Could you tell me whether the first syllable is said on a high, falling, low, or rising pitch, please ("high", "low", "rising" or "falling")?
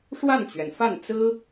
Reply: falling